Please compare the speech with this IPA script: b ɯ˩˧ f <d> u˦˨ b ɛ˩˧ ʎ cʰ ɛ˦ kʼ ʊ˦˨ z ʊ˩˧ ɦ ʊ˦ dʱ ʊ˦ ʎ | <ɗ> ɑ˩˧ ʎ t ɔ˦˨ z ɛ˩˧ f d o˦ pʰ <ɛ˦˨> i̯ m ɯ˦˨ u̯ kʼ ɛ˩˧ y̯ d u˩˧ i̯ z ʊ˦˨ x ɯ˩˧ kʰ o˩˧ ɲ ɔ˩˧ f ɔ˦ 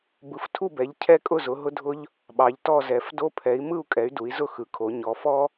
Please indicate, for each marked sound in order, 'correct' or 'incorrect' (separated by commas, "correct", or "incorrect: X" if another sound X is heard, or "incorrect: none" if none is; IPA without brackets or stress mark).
incorrect: tʰ, incorrect: ɓ, incorrect: ɛ˩˧